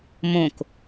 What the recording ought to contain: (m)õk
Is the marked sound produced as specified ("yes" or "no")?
yes